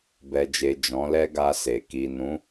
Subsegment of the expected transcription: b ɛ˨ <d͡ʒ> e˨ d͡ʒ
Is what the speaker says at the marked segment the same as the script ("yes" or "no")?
yes